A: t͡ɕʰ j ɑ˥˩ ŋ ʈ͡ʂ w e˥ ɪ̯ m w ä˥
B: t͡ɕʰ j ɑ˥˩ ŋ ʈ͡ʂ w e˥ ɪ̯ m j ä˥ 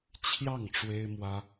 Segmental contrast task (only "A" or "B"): A